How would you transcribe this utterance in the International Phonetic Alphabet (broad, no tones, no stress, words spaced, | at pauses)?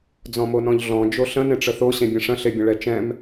d͡zɔ̃monɔ̃ʎɮɔ̃ d͡ʒoɬə̃ nẽʈ͡ʂəθo ɕẽbʲə̃ʂə̃ ɬebʲə̃ɭɛt͡ʃɛ̃m